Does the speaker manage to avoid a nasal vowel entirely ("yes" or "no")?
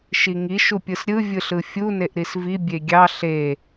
yes